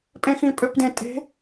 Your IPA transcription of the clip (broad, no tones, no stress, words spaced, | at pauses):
pʼẽxĩpʼøpdẽ tʼe̤